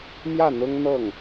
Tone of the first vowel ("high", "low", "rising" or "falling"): falling